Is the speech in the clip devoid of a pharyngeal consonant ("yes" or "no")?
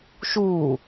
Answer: yes